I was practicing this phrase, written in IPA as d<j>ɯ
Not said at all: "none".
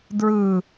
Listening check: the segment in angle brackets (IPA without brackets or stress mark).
ɹ